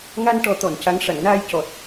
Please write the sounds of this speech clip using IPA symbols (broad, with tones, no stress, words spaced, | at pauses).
ŋa˧nʈɔ˨˩˦t̪ɔ˨˩˨n ca˧˥ŋ ʂa˨˩˨ŋnaː˧jcɔ˨˩t̚